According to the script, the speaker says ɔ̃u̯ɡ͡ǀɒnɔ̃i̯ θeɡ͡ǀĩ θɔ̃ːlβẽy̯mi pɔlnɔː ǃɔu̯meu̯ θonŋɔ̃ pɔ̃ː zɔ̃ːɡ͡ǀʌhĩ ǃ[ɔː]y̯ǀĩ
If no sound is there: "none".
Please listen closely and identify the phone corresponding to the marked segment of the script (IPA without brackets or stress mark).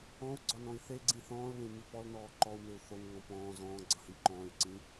ɔ̃ː